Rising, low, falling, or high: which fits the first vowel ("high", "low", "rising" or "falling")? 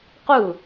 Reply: falling